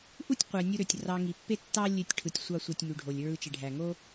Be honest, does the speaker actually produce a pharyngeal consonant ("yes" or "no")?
no